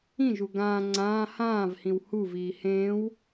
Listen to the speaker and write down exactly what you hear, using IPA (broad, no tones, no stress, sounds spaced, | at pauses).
ĩ ʒ u ɡ ãː ŋ͡ǀ ãː h ãː v h ĩ w h u v iː h ẽː w